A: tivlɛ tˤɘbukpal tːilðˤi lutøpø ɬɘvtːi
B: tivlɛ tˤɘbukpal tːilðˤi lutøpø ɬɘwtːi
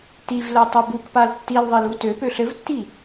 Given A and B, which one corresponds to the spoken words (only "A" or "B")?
A